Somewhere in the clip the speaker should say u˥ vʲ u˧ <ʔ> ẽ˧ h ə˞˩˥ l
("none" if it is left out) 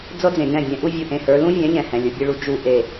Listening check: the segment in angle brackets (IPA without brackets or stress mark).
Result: ʔ